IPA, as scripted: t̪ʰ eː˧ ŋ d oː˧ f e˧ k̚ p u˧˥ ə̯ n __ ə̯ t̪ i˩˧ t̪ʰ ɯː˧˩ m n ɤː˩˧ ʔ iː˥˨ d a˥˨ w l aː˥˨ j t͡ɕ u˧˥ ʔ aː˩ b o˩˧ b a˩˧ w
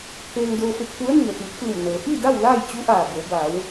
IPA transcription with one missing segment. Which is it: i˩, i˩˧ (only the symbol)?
i˩